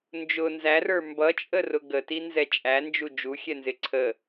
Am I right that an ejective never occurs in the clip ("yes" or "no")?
no